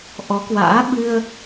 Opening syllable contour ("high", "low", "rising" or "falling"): rising